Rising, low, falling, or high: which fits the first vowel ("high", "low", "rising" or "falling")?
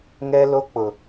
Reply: high